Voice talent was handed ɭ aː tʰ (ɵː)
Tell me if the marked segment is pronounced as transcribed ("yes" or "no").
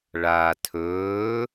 yes